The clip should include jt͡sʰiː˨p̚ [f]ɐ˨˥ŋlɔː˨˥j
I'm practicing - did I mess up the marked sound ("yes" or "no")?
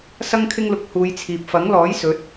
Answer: no